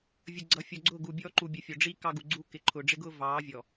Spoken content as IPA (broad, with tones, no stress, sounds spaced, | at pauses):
vʲ ə˨ ɡ͡ǀ ʌ˨˦ fʲ ɔ˨ ɡ͡ǀ ʊ˦˨ ɡ u˨ bʲ ɔː˦ ǃ u˨ bʲ ə˨˦ fʲ ɔ˨ ɖ͡ʐ i˦ k ɑ˦ ɡ u˨ ɡ͡ǀ u˦ k ɪ˨ ǃʰ ʊ˨ ɖ͡ʐ ɪ˦ ɡ ʊː˦ v ɑː˨˦ vʲ ɔ˨